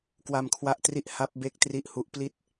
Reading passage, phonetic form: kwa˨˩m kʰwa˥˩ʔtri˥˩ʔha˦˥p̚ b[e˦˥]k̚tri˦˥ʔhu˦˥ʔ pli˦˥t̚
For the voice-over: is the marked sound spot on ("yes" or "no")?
no